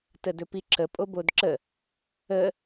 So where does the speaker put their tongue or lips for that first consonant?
tongue tip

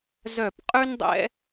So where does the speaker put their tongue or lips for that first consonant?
tongue tip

